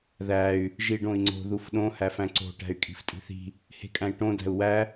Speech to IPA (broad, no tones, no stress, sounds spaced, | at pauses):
ð æ y̯ | ʒ i ɖ õ i̯ ŋ͡ǀ o̤ ð u f ɗ õ h æ f æ̃ ǀ o̤ ʈ æ̤ y̯ kʼ i̤ f tʼ i̤ θ i̤ | h e̤ kʼ æ̃ i̯ ʈ õ d æ̤ u̯ w æ